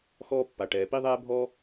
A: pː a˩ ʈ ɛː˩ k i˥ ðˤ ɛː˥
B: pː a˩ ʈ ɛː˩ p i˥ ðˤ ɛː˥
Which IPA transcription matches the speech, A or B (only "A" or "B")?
B